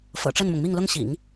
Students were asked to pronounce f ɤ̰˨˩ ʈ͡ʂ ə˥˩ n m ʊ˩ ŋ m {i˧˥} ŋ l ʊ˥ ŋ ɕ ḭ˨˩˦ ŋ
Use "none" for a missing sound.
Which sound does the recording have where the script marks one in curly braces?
i˥˩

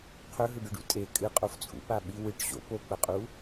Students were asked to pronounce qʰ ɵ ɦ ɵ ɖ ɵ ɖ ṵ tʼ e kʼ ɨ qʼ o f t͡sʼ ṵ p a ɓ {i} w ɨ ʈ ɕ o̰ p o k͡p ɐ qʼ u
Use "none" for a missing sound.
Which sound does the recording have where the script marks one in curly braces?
i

